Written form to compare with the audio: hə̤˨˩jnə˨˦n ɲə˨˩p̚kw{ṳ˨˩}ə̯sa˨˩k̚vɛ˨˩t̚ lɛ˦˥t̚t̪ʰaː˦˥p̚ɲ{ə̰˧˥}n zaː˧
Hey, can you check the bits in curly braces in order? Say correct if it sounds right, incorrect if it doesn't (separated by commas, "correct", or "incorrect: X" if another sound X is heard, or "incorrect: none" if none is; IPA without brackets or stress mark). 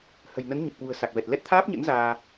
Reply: correct, correct